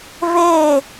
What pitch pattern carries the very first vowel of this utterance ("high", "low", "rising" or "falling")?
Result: falling